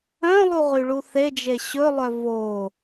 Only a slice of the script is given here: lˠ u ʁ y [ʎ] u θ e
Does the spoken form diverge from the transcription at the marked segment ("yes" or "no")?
yes